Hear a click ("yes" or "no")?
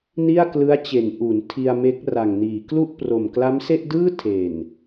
no